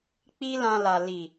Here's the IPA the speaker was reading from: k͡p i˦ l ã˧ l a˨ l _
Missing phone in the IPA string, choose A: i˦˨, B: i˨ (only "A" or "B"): B